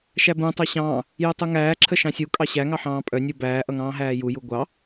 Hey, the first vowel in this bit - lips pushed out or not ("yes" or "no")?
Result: no